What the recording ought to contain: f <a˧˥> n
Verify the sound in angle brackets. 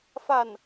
incorrect: a˥˩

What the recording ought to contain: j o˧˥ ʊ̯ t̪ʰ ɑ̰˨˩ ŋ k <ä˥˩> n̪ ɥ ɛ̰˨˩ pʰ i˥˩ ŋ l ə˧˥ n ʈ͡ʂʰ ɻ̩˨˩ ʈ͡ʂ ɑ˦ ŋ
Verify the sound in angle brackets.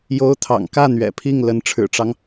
correct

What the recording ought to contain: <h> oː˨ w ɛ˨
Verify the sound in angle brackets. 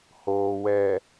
correct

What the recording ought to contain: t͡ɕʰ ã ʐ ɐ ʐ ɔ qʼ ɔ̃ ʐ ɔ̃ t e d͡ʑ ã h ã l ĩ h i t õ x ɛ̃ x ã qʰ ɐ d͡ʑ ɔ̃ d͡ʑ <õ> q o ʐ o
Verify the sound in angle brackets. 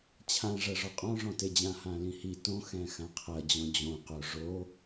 correct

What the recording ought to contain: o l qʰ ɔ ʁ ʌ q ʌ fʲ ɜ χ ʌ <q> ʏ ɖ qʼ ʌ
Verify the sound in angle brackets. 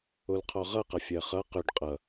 correct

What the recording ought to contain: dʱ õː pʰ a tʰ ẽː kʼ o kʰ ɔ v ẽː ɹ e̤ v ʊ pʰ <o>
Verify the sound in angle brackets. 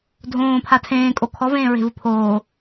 incorrect: oː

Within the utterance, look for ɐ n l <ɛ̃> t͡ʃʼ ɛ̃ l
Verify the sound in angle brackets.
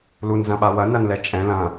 incorrect: ɛ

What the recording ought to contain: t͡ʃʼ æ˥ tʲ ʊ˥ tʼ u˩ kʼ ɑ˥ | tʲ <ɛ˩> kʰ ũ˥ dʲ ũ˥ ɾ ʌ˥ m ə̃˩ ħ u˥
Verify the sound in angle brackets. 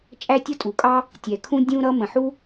correct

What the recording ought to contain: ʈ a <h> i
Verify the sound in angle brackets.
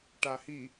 correct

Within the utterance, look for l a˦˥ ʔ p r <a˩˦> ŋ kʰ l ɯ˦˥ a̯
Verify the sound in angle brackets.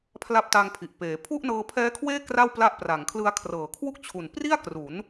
correct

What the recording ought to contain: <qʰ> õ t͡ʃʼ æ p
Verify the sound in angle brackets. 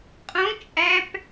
incorrect: qʼ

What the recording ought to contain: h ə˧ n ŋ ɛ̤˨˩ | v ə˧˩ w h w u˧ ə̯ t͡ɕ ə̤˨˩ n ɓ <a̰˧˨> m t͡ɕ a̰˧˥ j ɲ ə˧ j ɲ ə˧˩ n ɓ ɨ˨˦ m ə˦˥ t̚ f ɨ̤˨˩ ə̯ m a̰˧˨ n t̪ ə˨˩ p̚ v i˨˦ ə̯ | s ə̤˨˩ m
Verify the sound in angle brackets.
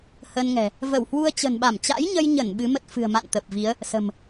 incorrect: a˧˩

